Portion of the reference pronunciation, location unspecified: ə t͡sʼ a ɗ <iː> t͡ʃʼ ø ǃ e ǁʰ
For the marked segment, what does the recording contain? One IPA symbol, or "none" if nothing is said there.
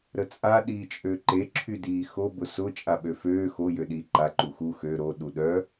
iː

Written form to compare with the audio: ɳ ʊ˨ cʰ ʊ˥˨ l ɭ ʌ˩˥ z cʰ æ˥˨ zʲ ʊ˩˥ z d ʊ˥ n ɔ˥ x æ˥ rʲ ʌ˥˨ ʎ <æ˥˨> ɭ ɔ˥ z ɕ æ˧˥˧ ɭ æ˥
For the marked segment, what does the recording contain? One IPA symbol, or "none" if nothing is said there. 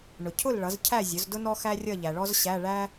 æ˨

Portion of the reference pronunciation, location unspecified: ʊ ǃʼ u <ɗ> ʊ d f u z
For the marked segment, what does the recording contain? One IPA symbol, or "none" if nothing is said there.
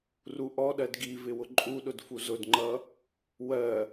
ɗ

